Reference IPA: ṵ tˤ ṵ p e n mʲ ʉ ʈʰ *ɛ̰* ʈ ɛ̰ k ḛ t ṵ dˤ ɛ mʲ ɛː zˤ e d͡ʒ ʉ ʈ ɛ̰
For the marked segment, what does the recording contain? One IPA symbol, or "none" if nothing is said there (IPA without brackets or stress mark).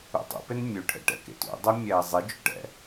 ɛ̰